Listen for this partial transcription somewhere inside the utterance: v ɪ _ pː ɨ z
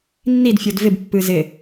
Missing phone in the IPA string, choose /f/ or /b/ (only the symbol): b